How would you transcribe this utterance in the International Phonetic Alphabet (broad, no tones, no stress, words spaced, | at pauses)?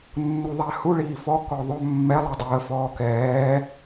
nːuðˤahu ɭiːfɔ kɔðˤɵ mːɛ lˠadˤəː fɔːkɛː